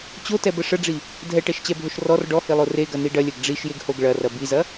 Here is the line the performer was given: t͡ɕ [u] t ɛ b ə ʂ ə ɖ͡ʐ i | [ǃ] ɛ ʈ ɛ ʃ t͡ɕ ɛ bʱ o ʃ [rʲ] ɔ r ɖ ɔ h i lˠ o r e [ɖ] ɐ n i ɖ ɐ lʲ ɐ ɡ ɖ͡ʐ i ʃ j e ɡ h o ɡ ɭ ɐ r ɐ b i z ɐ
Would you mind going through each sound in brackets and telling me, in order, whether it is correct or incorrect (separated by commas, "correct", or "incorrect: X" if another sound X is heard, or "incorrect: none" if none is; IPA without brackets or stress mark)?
incorrect: o, incorrect: dʱ, incorrect: r, incorrect: ɡ